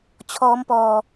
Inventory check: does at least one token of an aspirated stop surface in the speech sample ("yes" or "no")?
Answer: yes